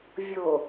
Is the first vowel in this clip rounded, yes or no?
yes